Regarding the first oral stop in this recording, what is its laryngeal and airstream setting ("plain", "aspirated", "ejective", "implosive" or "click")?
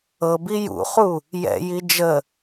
plain